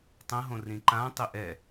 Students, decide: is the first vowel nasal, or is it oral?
nasal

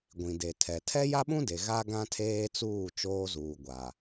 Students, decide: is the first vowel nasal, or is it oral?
nasal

